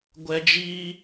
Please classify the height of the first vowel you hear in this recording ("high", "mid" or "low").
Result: mid